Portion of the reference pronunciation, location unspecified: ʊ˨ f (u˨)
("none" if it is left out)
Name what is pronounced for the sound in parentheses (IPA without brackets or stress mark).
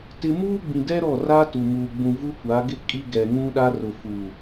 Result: u˨